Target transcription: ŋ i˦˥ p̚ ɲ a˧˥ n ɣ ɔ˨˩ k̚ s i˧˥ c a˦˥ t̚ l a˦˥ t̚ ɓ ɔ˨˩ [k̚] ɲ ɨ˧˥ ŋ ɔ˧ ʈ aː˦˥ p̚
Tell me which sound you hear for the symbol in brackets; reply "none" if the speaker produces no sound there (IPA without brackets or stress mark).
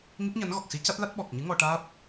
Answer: k̚